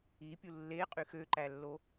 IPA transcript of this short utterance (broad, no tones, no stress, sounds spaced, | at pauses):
i pʲ u lː e qʼ y x ø ǃ æ lː o